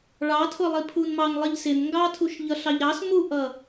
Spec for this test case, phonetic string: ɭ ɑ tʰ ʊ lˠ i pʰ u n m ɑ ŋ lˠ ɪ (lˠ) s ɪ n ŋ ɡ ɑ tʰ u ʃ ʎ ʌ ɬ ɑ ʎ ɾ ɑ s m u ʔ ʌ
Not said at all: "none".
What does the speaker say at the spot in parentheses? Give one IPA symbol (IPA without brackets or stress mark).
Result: ʎ